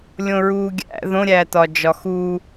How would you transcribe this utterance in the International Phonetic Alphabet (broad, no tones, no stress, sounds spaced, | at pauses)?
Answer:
lʲ õ ɹ uː ɡʲ æ̰ ð õ ɾʲ æː t ɒ d͡ʒ ɒ x uː